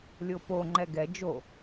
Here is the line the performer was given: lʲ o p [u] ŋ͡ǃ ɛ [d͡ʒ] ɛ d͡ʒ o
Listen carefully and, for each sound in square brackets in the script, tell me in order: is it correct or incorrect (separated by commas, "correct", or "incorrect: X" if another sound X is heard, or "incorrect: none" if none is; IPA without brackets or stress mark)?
incorrect: o, incorrect: ɡ